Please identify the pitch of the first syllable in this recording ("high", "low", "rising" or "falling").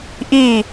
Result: falling